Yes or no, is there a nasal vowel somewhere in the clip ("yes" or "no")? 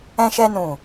yes